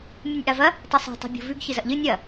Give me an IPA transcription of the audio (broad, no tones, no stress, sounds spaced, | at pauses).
mʲ ɨ nʲ ʔ a v ɐ | tˤ ɨ sˤ i̤ tˤ a̤ bʲ o̤ v ʉ ɡ ç ɨ z ɐ ʔ ʎ ɨ nʲ ɐ